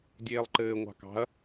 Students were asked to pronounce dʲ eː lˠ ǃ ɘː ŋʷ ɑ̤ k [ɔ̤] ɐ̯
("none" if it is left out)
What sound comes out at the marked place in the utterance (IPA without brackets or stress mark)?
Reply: ɑ̤